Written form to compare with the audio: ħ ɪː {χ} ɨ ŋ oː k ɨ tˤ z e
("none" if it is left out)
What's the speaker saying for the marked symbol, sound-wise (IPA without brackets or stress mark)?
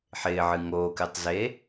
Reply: ʕ